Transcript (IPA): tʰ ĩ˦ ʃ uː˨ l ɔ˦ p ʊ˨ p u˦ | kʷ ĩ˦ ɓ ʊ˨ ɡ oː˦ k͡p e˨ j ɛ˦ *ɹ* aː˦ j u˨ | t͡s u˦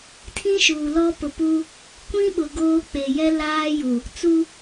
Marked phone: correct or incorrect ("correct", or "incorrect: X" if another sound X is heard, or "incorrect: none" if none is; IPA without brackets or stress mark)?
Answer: incorrect: l